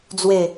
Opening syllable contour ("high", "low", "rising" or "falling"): falling